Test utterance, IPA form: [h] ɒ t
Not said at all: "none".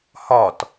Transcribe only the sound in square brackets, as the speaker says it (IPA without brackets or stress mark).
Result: h